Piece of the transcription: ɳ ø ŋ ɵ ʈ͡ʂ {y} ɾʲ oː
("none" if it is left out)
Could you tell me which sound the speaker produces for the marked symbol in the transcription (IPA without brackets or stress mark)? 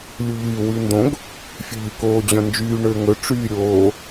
yː